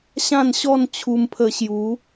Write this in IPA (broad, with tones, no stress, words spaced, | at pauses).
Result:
ɕã˥˧nɕɔ˥˧n t͡ɕʰu˧mpʰə˧ɕju˨˦